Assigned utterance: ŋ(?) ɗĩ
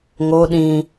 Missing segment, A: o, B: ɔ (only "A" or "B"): A